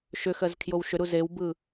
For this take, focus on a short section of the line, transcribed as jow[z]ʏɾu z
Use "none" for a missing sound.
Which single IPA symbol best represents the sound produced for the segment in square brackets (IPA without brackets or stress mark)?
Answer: ʃ